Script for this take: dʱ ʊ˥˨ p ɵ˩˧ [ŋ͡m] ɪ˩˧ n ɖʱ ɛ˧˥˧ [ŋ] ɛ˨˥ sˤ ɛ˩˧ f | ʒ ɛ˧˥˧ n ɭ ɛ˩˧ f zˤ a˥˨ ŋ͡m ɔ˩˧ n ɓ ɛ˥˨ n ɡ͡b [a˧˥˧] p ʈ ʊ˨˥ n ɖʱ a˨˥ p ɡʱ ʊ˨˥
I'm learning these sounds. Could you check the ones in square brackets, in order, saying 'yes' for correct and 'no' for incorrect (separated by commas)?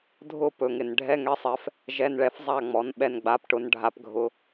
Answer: no, yes, yes